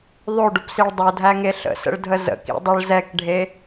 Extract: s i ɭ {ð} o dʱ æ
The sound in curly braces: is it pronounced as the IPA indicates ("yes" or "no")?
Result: no